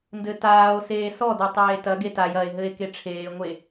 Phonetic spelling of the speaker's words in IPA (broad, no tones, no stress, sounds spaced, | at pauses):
n d ɘ t aː o̯ s eː s ɔ d œ tˤ eː t ɐ ɡ e t a j ɐ e̯ ɦ ɘ e̯ k e ʈ͡ʂʰ eː ŋʷ e